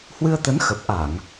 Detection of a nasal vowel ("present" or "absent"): absent